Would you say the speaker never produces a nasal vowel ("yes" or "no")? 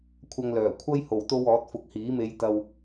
yes